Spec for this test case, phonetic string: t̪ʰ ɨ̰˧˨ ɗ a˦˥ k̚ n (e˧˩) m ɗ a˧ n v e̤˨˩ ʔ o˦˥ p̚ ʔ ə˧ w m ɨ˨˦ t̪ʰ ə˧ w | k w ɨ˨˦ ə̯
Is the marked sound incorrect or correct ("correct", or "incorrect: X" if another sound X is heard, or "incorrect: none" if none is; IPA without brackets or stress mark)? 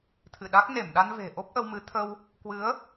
correct